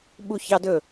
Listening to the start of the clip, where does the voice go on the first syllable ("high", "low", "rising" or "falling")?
falling